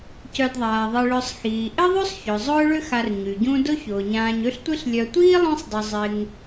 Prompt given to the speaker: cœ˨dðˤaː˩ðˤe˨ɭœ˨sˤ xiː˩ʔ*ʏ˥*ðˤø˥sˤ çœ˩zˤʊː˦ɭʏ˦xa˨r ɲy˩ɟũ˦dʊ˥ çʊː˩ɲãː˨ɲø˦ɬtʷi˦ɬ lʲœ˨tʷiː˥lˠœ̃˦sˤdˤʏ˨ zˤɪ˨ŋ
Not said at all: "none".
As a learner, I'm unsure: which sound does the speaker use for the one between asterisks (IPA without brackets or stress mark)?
ɪ˥